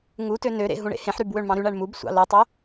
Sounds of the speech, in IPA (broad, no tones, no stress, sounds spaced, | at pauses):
ŋ u t ø n ø ɾ ḛ ɦ ũ ɳ ḛ h ẽ ħ ɾ y b w ø ɳ m ɑ̃ ɾ y ɳ æ ɳ m u b sʷ ɑ̰ l o tˤ o